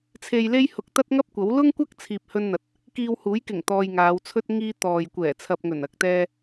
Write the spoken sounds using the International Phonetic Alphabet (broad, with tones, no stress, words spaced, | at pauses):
t͡sʰe˧jle˥j hʊ˨k̚t̪ɐ˥t̚ŋɐ˥p̚kʷɐ˨˥w lʊ˥ŋkʷɐ˥k̚ t͡sʰiː˧p̚hɵ˥nn̪ɐ˨t̚ | kiː˧whuː˨˥jkɪ˨˩ŋ t̪ɔː˧jŋaː˨˧wt͡sʰɵ˥t̚ ŋiː˥ t̪ɔː˨j kʷɛː˨˩t͡sʰɐ˨p̚ ŋɵ˨˩n ɐ˨˥k̚t̪ɛː˥